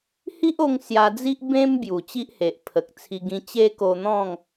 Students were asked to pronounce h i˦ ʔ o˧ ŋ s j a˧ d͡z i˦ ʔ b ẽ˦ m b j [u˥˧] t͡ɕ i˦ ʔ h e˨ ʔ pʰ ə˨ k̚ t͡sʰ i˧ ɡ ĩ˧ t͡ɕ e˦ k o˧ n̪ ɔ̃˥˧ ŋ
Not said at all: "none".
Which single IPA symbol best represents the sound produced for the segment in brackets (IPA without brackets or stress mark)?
u˨˩